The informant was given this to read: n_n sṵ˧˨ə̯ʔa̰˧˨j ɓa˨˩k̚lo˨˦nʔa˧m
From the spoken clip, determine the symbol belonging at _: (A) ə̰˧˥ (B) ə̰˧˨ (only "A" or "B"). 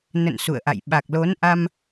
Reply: B